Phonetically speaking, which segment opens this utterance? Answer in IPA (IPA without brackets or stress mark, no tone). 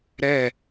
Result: ɾ